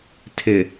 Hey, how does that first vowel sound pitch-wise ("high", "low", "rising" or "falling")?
low